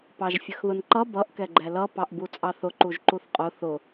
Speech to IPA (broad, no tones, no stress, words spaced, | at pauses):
pɑʒfʲəxðʊnǃʌ bʌʔ kɛɡ͡ǃɛlʌ pɑʔbut͡sʼɑθʊ ǃuʒǃuθqʼʊ θʊ